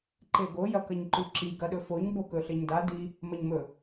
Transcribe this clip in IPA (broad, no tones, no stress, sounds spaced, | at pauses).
ǃ e ɡ o j ɐ k ɐ ɲ ǃ ʉ ǁ i ɡ ɐ ɗ ɵ f o ɲ b o k ɵ ɬ e ɲ d a d i | m ɐ ɲ m ɵ